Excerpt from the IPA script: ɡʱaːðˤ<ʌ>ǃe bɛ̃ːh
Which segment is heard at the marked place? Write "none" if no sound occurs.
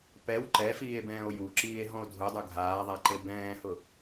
a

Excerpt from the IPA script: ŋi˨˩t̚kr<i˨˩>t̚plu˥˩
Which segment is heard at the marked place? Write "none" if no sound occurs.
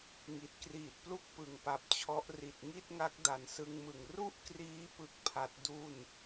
iː˨˩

